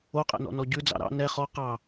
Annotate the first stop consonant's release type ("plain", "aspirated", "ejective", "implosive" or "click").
ejective